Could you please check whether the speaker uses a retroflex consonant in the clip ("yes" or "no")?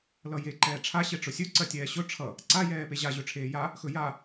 yes